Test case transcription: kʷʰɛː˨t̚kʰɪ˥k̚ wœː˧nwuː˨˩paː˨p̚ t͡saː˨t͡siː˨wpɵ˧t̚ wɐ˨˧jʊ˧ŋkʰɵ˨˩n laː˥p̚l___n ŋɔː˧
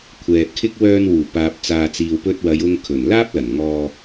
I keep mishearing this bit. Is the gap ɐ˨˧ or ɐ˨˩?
ɐ˨˩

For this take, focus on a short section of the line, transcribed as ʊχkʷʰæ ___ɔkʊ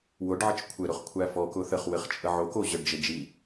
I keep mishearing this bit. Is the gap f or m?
f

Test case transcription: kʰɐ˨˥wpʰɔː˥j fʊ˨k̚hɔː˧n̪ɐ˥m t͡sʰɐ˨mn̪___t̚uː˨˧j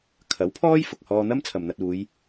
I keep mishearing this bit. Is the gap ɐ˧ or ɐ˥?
ɐ˧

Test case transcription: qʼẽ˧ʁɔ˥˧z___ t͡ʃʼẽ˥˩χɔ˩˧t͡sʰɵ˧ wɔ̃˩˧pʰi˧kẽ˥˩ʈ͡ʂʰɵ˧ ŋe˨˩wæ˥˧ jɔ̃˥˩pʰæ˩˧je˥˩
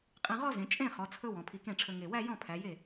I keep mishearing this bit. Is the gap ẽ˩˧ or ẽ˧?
ẽ˩˧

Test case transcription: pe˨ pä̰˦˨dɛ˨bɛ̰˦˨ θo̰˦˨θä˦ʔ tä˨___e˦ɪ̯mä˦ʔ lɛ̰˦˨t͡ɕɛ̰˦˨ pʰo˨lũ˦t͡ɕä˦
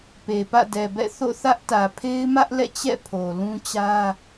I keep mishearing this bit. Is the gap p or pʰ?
pʰ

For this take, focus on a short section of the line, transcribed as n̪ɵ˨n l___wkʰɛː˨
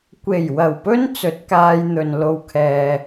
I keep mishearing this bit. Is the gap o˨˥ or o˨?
o˨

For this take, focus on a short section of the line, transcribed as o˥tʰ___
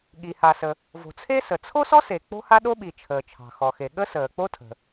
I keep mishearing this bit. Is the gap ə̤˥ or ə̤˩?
ə̤˩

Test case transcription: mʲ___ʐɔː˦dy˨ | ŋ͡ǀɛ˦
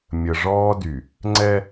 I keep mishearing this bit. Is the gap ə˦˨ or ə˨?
ə˨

